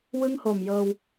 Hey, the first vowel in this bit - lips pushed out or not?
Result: no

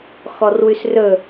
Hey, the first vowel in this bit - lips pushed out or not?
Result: yes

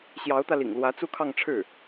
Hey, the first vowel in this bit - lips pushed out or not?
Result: no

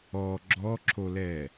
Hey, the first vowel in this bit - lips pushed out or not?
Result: yes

